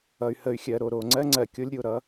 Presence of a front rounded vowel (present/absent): present